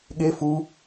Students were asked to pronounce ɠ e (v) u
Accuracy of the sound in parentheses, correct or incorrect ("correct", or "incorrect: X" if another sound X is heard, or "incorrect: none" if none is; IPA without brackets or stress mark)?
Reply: incorrect: f